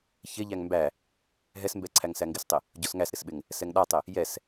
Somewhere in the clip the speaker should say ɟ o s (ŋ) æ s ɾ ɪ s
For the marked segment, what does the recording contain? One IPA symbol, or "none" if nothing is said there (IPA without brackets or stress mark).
ŋ